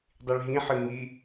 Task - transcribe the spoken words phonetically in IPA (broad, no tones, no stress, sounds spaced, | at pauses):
dˤ i ɭ ɦ ĩ ħ ɨ ŋ i